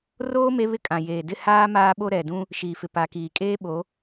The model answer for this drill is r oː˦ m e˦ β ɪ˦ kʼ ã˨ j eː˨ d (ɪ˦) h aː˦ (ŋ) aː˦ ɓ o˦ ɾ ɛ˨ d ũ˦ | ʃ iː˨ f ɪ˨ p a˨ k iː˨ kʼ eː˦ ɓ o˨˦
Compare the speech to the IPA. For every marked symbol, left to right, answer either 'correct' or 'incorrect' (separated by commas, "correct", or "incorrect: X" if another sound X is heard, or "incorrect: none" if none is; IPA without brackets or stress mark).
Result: correct, incorrect: m